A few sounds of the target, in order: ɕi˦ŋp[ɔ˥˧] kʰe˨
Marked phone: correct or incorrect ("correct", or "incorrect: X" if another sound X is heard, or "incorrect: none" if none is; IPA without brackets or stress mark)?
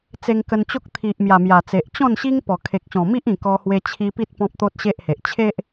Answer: incorrect: ɔ˨˩